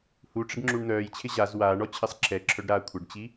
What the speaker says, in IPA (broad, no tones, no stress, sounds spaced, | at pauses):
h u ʈ͡ʂ ɪ ɖ ŋ͡ǁ u ɳ n̪ œː j t͡ɕʰ ɪ ʑ a z w aː ɳ ɔ t͡ɕʰ ɪ sˤ ǁʰ ɛ ǁʰ œ ɖ ɾ aː kʷʰ ə ɖ t͡ɕ i